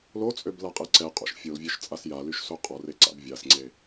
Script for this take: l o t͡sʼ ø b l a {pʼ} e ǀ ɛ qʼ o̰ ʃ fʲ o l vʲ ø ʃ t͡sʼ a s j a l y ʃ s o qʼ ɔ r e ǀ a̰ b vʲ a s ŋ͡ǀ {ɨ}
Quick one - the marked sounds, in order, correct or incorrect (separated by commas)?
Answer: incorrect, incorrect